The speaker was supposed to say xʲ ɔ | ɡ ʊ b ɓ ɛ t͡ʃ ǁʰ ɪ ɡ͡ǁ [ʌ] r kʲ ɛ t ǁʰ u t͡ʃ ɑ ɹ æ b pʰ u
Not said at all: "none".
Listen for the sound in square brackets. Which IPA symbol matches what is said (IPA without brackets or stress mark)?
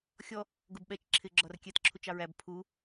ɒ